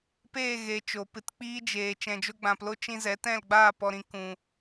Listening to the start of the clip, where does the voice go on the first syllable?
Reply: falling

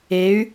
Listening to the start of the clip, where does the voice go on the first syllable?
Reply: rising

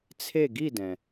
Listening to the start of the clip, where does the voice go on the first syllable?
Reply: falling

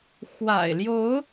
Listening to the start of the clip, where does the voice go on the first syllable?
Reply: low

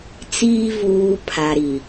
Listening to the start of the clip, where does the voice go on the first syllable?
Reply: low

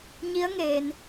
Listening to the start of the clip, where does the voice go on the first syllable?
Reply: rising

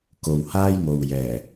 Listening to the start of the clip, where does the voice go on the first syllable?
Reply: low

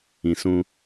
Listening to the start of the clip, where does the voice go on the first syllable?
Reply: low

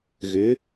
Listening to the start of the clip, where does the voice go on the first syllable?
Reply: rising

